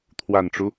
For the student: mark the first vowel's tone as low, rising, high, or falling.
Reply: low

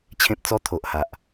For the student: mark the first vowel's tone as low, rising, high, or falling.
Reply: high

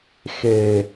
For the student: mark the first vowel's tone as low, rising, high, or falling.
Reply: low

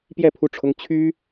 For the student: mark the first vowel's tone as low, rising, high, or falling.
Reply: falling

